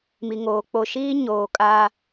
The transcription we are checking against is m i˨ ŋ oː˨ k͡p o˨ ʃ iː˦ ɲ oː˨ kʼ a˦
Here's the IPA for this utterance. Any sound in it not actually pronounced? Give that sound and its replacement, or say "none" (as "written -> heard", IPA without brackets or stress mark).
none